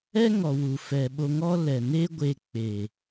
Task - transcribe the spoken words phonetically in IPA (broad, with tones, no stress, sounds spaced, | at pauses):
ɛ˦ ŋ ɔ˨ w u˨ f ɛ˨ ɓ o˧ ŋ ɔ˦ l ɛ˨ n e˦ ɡʷ e˧ k͡p e˨